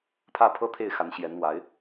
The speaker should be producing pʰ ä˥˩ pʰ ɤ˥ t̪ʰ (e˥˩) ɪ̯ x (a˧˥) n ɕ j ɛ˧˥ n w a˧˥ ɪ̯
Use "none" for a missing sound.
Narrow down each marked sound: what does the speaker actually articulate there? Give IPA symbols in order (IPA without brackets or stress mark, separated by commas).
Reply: e˥˩, a˧˥